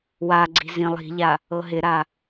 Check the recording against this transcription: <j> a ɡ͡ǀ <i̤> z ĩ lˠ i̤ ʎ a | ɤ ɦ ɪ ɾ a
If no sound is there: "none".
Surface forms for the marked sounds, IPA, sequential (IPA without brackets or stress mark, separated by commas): w, i̤